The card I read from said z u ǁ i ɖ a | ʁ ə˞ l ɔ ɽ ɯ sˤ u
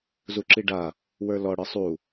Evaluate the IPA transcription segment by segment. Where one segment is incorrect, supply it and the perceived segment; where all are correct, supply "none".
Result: ʁ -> w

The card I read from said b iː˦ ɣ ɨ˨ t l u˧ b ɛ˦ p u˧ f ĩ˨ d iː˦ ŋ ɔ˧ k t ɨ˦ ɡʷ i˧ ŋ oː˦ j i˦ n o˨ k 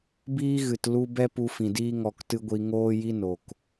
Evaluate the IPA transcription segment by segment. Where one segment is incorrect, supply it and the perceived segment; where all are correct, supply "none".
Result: none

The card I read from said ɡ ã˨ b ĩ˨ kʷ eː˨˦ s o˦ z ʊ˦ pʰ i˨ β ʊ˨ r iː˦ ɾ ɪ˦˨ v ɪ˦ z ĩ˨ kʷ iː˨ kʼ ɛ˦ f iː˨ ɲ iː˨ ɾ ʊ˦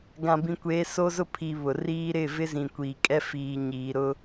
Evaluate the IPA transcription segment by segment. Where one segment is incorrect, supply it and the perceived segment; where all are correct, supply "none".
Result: none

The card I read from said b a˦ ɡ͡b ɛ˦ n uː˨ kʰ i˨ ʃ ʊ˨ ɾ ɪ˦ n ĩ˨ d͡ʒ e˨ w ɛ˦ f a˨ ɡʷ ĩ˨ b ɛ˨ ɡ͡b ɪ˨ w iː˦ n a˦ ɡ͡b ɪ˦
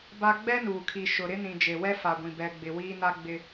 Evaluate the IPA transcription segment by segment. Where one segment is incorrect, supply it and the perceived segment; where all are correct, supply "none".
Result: none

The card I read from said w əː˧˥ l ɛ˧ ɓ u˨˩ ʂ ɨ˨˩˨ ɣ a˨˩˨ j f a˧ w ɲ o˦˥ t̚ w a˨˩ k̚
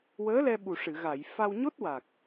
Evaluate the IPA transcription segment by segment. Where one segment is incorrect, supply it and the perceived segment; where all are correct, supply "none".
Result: none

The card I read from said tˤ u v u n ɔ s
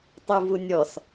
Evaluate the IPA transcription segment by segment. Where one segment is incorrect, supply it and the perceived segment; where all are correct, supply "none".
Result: n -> nʲ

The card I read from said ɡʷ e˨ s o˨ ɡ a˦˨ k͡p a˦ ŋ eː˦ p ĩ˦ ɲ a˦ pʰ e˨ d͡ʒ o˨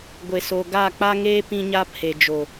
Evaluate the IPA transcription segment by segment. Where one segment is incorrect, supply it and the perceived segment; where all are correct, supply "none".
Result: none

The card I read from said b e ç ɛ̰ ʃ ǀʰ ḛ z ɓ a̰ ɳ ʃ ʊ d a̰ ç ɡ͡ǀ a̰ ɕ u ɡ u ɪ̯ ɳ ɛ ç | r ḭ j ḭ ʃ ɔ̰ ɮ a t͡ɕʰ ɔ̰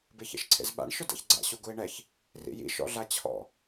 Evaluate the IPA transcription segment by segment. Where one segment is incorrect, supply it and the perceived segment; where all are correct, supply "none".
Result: none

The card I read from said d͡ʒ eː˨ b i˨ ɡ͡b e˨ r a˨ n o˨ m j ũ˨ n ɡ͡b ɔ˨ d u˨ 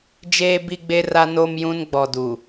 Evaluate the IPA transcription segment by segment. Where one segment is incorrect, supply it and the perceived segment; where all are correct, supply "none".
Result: none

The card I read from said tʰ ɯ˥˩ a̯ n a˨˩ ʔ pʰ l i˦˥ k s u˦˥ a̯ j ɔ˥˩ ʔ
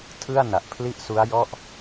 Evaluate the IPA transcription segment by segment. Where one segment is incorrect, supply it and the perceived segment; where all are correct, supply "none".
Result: k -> ʔ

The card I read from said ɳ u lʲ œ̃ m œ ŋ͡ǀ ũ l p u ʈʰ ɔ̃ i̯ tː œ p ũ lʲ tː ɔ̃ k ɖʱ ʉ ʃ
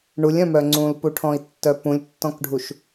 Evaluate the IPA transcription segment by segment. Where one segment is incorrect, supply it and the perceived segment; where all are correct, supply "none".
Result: ʉ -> u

